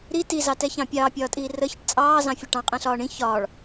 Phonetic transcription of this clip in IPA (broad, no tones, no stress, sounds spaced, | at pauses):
ɾ i t i z ɑ t ɛ ç ɑ̃ pʲ ɑː pʲ ɒː tʼ iː r ə ç ə ʈ t͡sʼ ɑː z ɑ̃ fʲ ə ʈ ɑ̃ qʼ ɛ̃ ɬ ɒː ɳ ĩ ç ɒː ɭ